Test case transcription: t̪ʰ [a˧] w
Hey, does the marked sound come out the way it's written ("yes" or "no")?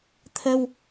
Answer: no